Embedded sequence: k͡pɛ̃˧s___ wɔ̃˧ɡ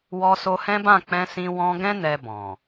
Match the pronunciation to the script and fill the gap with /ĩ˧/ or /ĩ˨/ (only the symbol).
ĩ˧